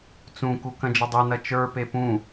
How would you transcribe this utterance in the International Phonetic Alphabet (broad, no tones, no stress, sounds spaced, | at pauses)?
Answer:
t͡s ũ k u k ɐ̃ d͡ʒ ɐ dˤ e n ɐ t͡ʃ ə˞ p e p ũ